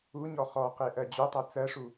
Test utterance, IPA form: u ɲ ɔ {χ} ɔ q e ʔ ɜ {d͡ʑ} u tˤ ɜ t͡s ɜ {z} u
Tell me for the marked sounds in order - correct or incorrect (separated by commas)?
correct, correct, incorrect